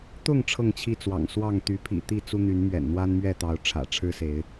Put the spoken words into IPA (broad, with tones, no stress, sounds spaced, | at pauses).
t̪ ʊ˥˨ ŋ ʈ͡ʂʰ ɤ˥˨ ŋ t͡ɕʰ i˥˨ t͡s w ɑ̰˨˩ ŋ s w ɑ˥˨ ŋ t̪ y˨˦ pʰ ḭ˨˩ t̪ i˥˨ t͡s u˦ n̪ y˨˦ n m ɥ ɛ̰˨˩ n n̪ w a˦ n m ɥ ɛ˥˨ t̪ ɑ˨˦ ʊ̯ ʈ͡ʂʰ ä̰˨˩ ʈ͡ʂʰ ɻ̩˦ s e˨˦ ɪ̯